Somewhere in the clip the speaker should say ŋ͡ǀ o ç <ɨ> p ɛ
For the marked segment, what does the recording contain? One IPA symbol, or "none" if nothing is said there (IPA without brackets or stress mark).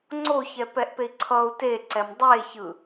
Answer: ɛ